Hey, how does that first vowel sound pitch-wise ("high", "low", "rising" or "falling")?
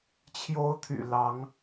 high